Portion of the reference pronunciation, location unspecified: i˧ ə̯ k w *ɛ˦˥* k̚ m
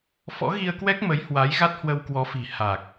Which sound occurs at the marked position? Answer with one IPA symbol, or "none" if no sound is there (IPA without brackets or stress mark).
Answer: ɛ˦˥